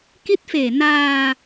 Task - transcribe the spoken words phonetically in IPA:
ki˦˥t̚feː˨˩ naː˧

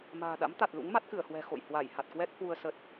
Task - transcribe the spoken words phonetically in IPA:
ma̤ː˨˩ ɗa̰˧˥mt̪a˨˩t̚ lṵ˧˥ŋ ma˦˥t̚kɨ˧˩ə̯hwɛ̤˨˩ xo̰˧˨j hwa˧˩jha˨˩t̚kwɛ˦˥t̚ hwu˧ə̯ sə˨˩t̚

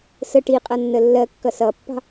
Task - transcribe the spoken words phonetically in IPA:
sə ʈi qʼʌnːəlːɜkːʌ sʌpːɑ̤

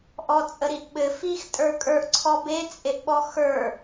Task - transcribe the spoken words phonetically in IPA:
ʔɔt͡sʼəɾiʔɓɘ fix tʼə˞kʼə˞ʔ ǀʰɔbe t͡sʼeʔɓɔxə˞

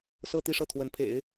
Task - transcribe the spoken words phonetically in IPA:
sɤ˥˧t̪i˥˧ʂɤ˥˩ t̪ʰwə˧˥npʰḛ˨˩˦ɪ̯

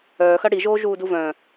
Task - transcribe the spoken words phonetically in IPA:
œːxɐ ɽiʒoː ʒuːduvœ̃

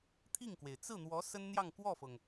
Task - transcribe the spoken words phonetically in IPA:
t̪ʰi˥˩ŋkwe˩ɪ̯ t͡sɹ̩˥˩n̪wɔ˧˥ sə˥nn̪jɑ˥˧ŋ kwɔ˥˩fɤ˩ŋ

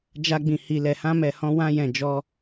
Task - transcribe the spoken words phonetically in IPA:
d͡ʒa˧ɡ͡bĩ˨ hi˨lɛ˨hã˧ mɛ˨hɔ̃˧wã˧ jɛ̃˨ d͡ʒɔ˧

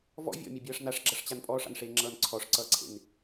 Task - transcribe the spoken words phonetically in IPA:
vɔ̰ vʲɔ̰mʲʌbʲʌːʂ naʂɡ͡ǁʌʂt͡ɕan pʼɔːʂa̰nʂeːŋ͡ǁʌːn ǀʰɔʂǀʌːǀʰḛn

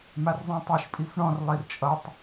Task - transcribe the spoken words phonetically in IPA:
marzˤĩtˤiʃ pʼifɳɔ̃r lˠirt͡ʃʼʌtˤ

